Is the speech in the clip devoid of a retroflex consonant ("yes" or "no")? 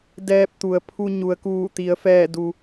yes